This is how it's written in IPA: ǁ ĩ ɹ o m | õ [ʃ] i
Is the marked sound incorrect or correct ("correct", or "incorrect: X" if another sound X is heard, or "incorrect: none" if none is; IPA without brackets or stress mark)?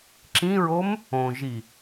incorrect: ʒ